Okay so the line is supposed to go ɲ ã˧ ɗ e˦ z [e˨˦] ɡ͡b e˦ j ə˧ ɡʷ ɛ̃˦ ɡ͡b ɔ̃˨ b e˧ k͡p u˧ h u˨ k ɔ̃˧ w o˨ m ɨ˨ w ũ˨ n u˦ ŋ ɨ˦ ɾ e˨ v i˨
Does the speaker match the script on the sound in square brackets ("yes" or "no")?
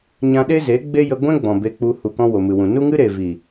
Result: yes